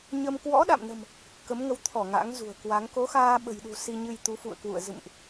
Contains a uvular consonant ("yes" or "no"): no